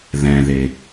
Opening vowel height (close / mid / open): mid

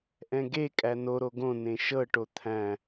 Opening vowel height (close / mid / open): mid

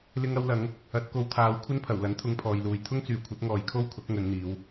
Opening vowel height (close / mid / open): close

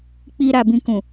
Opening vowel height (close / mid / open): close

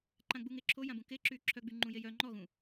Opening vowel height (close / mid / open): open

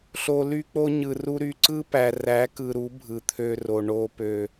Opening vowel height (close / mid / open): mid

